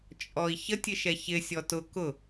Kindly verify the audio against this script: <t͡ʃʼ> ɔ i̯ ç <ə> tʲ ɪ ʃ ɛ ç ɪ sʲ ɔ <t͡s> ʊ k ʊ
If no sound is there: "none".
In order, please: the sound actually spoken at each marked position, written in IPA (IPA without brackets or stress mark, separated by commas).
t͡ʃʼ, ə, t